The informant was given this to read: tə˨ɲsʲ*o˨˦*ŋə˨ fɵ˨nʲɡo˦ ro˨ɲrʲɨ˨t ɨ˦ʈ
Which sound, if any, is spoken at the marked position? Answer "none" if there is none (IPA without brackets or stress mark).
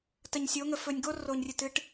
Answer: o˨˦